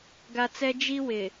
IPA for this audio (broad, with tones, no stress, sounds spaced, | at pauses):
ɡ a˨ t͡s ɛ˦ d͡ʒ i˦ w ɪ˨